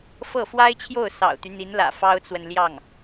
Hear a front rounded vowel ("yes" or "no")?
yes